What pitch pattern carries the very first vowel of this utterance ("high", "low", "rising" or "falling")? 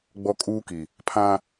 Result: high